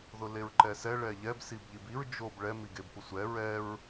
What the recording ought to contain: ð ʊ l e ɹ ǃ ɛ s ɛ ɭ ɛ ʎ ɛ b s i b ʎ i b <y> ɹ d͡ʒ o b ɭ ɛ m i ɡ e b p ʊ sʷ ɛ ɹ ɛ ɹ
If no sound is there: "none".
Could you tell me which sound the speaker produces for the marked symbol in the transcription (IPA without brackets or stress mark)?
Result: i